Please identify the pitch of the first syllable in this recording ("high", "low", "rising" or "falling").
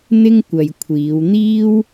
high